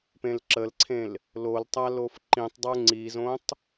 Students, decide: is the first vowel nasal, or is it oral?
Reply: nasal